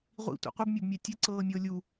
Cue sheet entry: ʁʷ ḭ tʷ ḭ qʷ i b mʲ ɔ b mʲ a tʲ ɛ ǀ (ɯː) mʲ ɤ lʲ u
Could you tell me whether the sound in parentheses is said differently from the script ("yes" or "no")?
yes